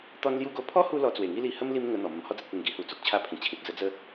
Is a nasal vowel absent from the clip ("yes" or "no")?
no